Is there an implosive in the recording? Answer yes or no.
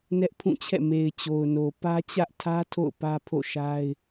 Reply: no